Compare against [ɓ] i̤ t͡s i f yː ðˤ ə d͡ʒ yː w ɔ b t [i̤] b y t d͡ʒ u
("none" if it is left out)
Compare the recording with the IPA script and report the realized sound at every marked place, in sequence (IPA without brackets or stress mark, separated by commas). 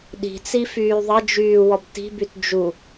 ɗ, i̤